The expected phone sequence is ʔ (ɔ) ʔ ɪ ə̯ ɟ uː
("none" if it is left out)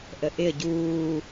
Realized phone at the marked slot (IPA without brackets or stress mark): ə